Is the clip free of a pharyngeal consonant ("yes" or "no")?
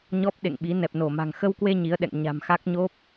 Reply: yes